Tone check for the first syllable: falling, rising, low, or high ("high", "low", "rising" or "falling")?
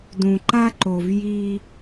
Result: low